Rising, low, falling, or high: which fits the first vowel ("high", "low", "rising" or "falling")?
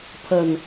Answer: low